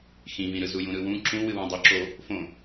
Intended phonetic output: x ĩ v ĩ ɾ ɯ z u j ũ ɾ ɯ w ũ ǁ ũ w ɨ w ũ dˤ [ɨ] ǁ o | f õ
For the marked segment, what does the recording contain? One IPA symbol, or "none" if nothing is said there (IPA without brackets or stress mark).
ɨ